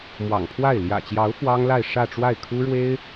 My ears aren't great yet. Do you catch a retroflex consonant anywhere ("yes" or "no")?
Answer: yes